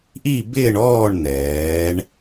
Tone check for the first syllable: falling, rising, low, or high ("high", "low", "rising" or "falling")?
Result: falling